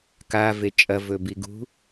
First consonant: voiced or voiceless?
voiceless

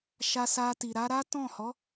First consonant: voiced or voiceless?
voiceless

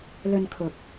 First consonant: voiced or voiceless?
voiced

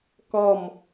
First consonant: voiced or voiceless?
voiceless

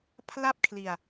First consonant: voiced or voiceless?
voiceless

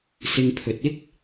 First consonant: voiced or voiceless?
voiceless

